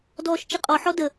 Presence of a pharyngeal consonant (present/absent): present